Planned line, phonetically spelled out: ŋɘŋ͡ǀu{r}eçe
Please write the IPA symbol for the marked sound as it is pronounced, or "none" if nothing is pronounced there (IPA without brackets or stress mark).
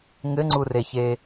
r